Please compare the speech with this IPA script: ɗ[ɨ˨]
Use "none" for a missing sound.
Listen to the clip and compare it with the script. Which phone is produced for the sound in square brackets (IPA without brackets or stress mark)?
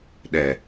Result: ɛ˨